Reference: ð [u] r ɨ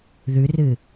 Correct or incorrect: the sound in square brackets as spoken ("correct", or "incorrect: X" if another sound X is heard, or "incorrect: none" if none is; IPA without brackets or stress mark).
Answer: incorrect: ʉ